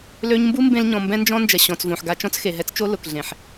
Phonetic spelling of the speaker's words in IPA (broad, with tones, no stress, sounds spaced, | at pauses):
l ø˧ ɲ m b u˦ m b ẽ˧ l ɲ ɔ̃˨ m b ɛ̃˦ n d͡ʒ ɔ̃˦ n d͡ʒ ɐ˨ ɕ ɔ̃˨ t͡s v õ˨ ħ ɡ a˧ t͡ʃ ɔ̃˦ t͡s x e˨ ɦ ɛ˦ t͡s t͡ʃ o˦ l ʊ˨ k ɮ ẽ˨ ħ